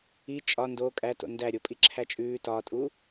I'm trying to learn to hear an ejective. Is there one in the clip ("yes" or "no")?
yes